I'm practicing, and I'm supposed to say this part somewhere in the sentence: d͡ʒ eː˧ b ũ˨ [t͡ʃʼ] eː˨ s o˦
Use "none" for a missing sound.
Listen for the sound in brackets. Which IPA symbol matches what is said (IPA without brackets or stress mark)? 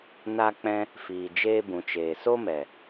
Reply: t͡ʃ